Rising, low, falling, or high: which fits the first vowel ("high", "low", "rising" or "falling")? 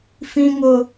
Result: high